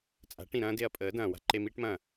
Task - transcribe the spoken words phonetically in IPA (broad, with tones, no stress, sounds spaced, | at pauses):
t͡sʼ a̤˨˦ ʈ ĩ˨ ɾ ɐ̃ː˦ d e˧ ɐ̯ pʼ əː˨˦ d ɐ̃ː˨ w a̤˧ ǃ e˧ m iː˦ ʈ m ɐ̃ː˦˨